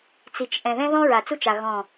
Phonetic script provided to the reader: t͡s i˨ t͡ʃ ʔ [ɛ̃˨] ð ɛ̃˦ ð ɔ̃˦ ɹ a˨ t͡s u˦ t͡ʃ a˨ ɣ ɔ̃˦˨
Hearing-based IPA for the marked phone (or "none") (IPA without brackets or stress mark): ɛ̃˨